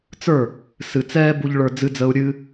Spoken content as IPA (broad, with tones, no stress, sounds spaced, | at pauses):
t͡s ə˞˥˩ | s ɨ˨ t͡s ɛː˥ b u˥ ʎ ɭ ə˞˥ d͡z ɨ˥ d͡z ə˥ u̯ ɾʲ ɨ˥